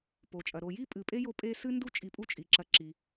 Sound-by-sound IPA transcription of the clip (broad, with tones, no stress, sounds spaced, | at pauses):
p o˩ t͡ʃʼ ɐ˩ ɾ o˨ j i˥ pʼ ɨ˨ pʼ e˥ j o˦ pʼ e˦ s ɨ˥ n d u˥ t͡ʃʼ i˨ pʼ u˦ t͡ʃʼ i˩ ǁ ɐ˨ ǁ i˩